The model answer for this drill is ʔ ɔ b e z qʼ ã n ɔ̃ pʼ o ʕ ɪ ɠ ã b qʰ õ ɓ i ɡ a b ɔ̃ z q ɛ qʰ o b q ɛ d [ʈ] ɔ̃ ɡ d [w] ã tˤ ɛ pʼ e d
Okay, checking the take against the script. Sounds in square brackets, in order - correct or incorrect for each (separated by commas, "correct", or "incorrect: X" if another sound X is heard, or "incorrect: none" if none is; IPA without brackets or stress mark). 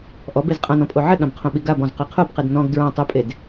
incorrect: n, incorrect: ɹ